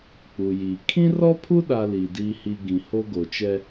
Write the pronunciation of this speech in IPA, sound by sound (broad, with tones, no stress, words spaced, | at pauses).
k͡pu˨jiː˨ kʰĩ˦rɔ˦pʰu˦ ɗa˦liː˨ diː˦ hi˦ ɡĩ˨ ho˦ɡo˨t͡ʃɛ˦